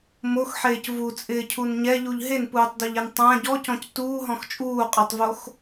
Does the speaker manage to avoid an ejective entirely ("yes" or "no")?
no